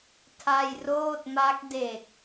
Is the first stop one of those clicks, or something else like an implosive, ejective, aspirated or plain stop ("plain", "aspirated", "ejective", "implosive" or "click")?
aspirated